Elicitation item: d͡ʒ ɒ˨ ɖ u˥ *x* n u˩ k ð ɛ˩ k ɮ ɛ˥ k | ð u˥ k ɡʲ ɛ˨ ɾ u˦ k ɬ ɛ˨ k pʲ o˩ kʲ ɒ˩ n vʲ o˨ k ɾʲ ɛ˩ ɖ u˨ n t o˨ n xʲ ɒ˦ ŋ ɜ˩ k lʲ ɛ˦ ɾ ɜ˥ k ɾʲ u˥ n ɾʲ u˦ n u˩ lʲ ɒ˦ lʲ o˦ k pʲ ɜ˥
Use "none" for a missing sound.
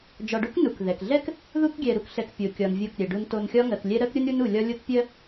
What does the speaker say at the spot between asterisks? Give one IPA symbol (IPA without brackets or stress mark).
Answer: k